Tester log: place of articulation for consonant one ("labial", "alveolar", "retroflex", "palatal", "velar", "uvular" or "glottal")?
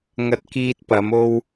velar